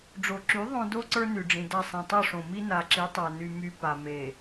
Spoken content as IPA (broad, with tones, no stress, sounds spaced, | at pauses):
ɖ͡ʐ o˨ ǁ y˨˦ ðˤ õ˦ d o˦ ǀ ə˞˦ n y˨ ɖ͡ʐ ĩ˨ d a˦˨ sˤ ĩ˨ tˤ ɵ˦˨ ʂ õ˨ m i˦ n a˨ ǁ i˨˦ tˤ a˨ n y˨ m y˨ p a˨ m e˨